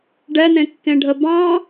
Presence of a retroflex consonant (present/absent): present